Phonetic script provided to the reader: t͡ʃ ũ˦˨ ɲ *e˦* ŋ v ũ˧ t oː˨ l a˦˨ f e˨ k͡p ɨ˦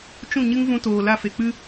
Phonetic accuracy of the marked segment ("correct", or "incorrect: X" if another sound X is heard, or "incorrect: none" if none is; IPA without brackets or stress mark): incorrect: ɨ˦